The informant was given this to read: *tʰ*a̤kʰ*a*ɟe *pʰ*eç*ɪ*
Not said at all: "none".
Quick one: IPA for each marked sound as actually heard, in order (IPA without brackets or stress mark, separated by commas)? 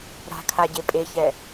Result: ɾ, a, pʼ, ɛ